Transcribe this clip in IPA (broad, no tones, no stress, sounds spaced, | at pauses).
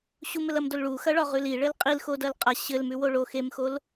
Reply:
ɕ u m ɘ l ɐ m d o l ɭ u x ɐ ɭ ɒ ʁ ʉ l i ɭ ɘ l qʼ i l x o d ɐ l qʼ a ɕ ɘ l m ʉ w o ɭ o x e m x o l